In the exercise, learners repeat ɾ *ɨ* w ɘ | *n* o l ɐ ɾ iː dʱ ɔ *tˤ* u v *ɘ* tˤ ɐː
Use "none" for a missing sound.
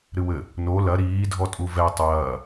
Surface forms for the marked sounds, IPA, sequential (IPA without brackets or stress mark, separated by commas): ɨ, n, tʼ, ɛ